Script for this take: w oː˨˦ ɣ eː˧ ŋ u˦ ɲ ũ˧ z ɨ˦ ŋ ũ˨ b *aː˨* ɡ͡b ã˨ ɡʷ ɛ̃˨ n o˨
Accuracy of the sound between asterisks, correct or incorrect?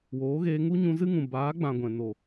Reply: incorrect